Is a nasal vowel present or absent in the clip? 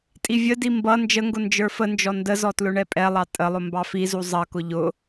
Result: absent